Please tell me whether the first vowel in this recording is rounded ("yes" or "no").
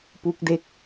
yes